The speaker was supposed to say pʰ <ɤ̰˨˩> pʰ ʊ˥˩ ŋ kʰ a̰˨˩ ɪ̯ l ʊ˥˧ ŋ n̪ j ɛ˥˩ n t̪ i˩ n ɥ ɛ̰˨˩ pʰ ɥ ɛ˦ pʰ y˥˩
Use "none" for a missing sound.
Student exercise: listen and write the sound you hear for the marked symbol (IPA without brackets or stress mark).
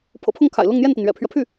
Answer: ɤ̰˨˩